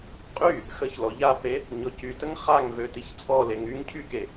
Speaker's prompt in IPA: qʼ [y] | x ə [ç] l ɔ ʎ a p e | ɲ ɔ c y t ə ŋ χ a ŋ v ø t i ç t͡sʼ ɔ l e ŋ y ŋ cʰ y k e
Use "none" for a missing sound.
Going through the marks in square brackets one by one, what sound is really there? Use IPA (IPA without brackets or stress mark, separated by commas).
y, ç